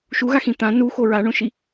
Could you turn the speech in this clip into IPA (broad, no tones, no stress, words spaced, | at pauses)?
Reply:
ʃuɣaxĩ t̪ã nuxo ɹaɳõʃi